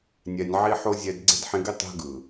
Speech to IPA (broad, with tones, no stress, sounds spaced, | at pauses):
nʲ ɛ˧ nʲ ʕ i˦ ħ o˦ zʲ ɛ˧ d ɡ͡ǀ e̤˦ d ħ ĩ˧ ɡ i˦ tˤ e̤˦ ɡ ɯ˨